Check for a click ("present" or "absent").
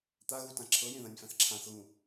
present